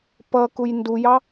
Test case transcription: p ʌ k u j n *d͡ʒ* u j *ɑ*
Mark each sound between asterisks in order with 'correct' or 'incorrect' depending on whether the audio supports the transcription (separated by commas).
incorrect, correct